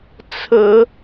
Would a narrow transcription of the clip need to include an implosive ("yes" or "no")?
no